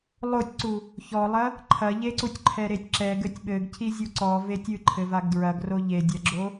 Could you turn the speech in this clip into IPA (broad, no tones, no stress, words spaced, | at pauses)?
lˠotʲǀu | çɔlˠɐ | ǃʰɐʎeǀutʲ ǃʰɛɾetʲǁɛ ɡɘtʲɓɘɡcʰizʲu ǀɔ vetʲɨǃʰɘ vaɡdɹɐɡro ʎe dʲɐɡ͡ǁo